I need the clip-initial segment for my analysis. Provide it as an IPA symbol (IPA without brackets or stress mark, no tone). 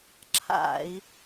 ǁʰ